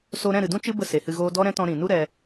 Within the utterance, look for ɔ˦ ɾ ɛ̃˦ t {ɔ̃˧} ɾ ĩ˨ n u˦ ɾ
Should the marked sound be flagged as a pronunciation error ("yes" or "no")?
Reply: no